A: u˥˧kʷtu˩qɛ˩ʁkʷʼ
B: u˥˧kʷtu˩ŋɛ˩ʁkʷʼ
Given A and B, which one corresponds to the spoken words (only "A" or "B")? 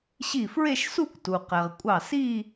A